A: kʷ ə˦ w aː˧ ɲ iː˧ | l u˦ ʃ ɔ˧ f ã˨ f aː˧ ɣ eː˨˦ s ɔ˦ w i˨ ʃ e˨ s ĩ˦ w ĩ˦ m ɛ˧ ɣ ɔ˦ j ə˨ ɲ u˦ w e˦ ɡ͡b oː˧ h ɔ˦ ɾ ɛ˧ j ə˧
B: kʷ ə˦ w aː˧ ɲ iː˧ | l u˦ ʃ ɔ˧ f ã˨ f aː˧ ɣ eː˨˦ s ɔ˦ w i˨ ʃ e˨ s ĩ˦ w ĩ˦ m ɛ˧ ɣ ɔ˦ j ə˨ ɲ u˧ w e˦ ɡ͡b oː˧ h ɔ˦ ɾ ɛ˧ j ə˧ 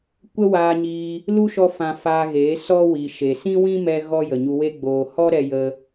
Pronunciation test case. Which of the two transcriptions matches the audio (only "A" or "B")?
B